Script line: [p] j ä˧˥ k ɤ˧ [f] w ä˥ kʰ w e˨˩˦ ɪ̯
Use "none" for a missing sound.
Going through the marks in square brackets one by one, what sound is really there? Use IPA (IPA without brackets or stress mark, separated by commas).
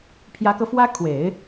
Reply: pʰ, f